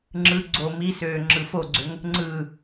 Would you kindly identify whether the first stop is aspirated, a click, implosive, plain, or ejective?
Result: click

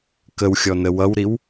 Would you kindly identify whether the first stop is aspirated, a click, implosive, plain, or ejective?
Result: plain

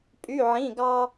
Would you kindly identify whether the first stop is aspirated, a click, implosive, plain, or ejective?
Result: ejective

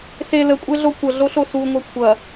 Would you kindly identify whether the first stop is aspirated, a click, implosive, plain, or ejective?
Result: ejective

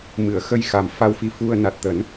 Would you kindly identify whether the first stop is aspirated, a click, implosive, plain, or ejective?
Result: plain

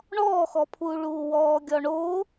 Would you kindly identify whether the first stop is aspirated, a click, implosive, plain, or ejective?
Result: aspirated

